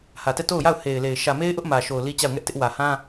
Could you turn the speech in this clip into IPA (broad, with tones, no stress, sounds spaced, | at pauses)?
h ä˨ t ɛ˦˨ t o˦˨ ʊ̯ j a˦˨ ʊ̯ h e˨ ɪ̯ l e˨ ɪ̯ ʃ ä˨ m e˦ ɪ̯ ʔ ʊ˦ ʔ m ä˨ ʃ o˨ ʊ̯ l i˦ t͡ɕ a˦˨ ʊ̯ ŋ ɛ˦ ʔ t ɪ˦ ʔ w ä˨ h ã˦